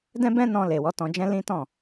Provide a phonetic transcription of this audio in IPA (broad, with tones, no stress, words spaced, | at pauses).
dɛ̃˦bɛ̃˦nɔ̃˧ le˨wɔ˨˦tɔ̃˧d͡ʒɛ̃˦ lĩ˦tɔ̃˦˨